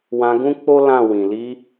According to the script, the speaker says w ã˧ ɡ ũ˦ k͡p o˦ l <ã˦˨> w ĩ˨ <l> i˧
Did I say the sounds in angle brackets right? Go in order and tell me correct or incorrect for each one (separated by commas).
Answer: correct, correct